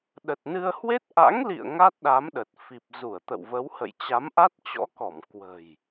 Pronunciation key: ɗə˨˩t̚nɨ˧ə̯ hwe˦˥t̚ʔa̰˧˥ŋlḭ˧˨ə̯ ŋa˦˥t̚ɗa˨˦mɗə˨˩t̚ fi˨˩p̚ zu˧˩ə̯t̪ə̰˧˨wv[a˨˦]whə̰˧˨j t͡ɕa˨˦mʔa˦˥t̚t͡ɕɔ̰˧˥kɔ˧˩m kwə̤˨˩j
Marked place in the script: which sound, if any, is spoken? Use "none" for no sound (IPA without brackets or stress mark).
ə˨˦